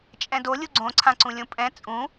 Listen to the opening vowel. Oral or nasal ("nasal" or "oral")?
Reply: nasal